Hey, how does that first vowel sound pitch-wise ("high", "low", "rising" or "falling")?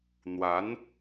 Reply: rising